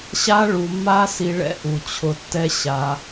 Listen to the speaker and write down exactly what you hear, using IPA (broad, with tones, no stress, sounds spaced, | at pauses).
ɕ a˦ ɭ u˧ mː a˦ s i˧ ɭ ɛ̰˦ ʔ u˧ t͡ɕʰ ʊ˧ tː ɛ˦ ɕ a˧